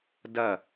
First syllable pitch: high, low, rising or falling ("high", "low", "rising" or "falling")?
falling